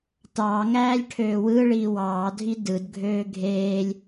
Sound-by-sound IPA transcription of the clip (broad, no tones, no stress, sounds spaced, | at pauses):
t ɑː ŋ æː lʲ ʈʰ øː w ɯː ɭ iː w ɑː dʱ i d ɯ d ɡʱ øː ɡʱ eː lʲ